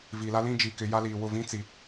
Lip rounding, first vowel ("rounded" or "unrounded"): unrounded